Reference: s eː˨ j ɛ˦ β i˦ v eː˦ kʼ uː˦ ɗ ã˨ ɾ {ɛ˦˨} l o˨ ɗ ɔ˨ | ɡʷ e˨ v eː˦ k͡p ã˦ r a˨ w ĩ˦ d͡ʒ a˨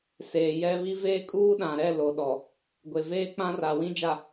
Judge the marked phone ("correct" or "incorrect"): correct